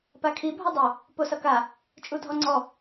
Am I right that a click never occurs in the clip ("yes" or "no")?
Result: no